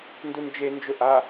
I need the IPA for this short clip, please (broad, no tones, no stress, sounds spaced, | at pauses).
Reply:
n d u n d͡ʒ e n d͡ʒ ʊ ʔ a